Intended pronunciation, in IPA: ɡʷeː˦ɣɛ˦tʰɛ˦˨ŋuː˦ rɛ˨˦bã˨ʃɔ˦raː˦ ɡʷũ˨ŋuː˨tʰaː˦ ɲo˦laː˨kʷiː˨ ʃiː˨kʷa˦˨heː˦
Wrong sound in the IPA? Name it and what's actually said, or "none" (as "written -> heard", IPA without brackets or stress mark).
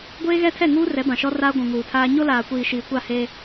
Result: none